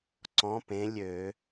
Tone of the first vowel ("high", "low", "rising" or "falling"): rising